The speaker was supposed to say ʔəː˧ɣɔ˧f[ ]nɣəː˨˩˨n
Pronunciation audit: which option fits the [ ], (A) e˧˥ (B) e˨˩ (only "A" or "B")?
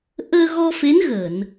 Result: A